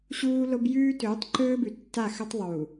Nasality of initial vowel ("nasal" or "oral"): oral